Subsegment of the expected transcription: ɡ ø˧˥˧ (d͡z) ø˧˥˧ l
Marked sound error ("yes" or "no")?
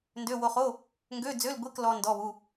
no